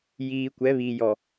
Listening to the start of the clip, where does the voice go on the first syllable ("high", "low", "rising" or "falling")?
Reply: low